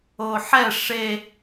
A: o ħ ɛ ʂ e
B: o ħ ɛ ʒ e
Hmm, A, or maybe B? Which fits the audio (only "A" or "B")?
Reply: A